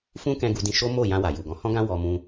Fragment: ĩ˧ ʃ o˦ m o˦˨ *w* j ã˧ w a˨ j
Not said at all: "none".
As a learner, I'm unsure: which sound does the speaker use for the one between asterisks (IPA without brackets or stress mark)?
none